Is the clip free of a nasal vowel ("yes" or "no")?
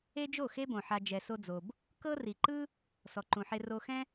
no